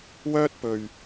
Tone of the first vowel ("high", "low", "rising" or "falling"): high